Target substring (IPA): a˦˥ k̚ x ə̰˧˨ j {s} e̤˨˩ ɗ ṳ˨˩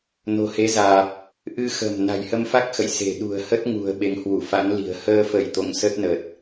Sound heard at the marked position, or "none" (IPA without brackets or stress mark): s